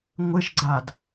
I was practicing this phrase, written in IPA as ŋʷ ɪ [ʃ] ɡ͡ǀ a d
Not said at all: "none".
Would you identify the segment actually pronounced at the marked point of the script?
ʃ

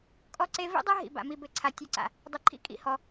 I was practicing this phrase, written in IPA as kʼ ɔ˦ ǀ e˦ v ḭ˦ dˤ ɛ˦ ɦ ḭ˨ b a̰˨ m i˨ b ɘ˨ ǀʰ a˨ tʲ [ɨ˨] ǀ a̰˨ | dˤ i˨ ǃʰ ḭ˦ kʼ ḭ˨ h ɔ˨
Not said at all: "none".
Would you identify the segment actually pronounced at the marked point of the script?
ɨ˨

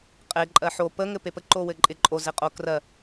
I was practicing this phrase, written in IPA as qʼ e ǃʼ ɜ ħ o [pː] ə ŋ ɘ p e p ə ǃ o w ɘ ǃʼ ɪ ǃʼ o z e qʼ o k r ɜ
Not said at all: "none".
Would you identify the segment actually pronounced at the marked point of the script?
p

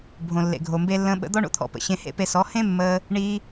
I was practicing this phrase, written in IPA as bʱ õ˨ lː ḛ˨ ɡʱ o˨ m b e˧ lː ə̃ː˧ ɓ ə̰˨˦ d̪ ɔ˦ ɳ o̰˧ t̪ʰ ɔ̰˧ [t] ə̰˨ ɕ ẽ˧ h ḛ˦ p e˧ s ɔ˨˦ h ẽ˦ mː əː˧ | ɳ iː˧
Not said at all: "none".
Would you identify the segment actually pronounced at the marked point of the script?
p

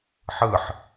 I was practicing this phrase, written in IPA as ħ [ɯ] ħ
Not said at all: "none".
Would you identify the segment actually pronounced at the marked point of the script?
ɯ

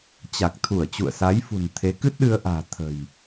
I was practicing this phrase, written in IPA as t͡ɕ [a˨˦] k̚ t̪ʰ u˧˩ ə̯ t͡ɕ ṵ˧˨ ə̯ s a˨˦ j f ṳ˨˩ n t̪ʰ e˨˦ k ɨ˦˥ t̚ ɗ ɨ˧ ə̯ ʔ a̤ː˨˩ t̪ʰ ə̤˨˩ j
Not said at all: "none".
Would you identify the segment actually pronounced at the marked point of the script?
a˨˩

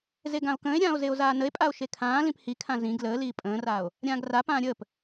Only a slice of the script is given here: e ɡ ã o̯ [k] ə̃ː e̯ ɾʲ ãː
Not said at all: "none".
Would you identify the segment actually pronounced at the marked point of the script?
k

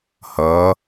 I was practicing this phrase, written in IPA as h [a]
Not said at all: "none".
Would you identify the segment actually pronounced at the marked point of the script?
ʌ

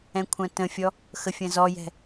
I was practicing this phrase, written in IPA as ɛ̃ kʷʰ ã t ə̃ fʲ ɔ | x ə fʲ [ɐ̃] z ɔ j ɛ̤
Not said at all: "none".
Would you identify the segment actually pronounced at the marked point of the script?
ɐ̃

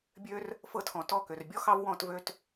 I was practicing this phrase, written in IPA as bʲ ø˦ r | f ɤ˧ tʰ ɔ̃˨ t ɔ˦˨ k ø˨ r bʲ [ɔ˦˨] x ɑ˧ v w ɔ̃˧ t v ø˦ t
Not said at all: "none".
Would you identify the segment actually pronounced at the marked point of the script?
ɔ˧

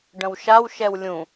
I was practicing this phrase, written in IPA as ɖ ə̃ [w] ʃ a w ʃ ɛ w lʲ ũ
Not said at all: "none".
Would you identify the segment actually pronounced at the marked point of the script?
w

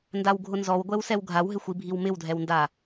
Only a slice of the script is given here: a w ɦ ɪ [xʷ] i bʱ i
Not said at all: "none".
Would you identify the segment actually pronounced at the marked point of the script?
xʷ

